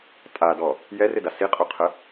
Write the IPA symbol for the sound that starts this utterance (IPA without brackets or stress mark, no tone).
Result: tʼ